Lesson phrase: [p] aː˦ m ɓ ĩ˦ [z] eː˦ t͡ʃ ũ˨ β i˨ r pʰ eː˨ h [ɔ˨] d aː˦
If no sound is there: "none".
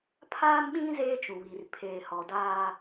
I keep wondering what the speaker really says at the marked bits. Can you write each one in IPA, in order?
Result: pʰ, z, ɔ˨

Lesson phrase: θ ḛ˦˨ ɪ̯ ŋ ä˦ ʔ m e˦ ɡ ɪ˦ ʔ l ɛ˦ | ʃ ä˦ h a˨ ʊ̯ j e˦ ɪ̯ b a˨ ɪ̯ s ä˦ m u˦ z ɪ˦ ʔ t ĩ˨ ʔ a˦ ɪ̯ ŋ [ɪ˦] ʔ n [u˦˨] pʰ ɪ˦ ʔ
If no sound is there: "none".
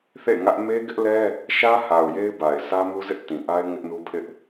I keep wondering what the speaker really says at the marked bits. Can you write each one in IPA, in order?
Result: ɪ˦, u˦

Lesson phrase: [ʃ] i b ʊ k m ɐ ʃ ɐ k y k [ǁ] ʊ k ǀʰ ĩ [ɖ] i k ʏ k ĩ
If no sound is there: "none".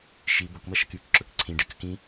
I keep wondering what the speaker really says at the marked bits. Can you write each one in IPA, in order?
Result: ʃ, ǁ, ɖ

